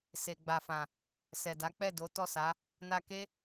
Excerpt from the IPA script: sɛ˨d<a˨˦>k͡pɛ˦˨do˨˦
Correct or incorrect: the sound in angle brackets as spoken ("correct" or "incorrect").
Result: correct